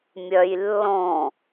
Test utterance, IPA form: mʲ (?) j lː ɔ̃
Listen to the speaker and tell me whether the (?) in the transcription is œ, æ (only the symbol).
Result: œ